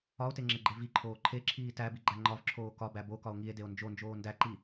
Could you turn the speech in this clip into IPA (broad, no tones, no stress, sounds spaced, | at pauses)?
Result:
ɒ o̯ t e ŋ͡ǁ e ɡ͡ǃ e v i ǃʰ oː ǃʰ e ǁʰ iː t æ b i ɡ͡ǃ æ ŋ͡ǃ ɒ v ǁʰ oː k ɒ b æ b o k ɒ o̯ ŋ i e̯ d e o̯ n d͡ʒ o n d͡ʒ oː n d æ ǃ i